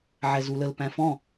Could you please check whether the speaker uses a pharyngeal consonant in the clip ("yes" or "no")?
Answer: yes